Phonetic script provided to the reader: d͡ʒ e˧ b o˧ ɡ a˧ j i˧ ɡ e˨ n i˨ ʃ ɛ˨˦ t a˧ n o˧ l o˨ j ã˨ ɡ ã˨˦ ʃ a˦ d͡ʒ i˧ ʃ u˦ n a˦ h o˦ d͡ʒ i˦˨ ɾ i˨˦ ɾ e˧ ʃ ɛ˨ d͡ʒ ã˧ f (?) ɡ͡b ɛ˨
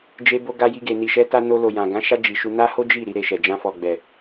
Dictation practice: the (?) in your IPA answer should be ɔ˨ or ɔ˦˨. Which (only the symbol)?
ɔ˨